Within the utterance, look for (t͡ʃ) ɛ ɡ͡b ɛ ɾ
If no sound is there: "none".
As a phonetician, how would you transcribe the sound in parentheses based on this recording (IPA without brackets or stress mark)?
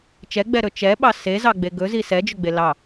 t͡ʃ